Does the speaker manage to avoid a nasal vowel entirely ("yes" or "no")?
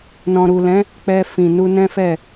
no